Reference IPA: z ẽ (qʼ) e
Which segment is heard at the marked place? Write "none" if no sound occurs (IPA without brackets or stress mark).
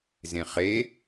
χ